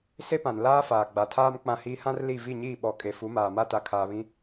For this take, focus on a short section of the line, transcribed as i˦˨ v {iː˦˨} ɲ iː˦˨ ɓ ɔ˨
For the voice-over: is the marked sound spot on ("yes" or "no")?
no